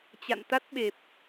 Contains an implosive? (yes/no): yes